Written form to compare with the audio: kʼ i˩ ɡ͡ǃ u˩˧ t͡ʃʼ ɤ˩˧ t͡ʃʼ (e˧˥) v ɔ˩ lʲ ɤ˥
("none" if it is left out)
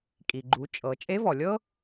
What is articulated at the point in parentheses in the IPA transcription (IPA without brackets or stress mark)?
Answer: e˧˥